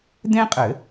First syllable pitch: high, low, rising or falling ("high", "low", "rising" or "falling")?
high